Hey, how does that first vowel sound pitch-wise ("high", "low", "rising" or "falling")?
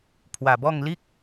low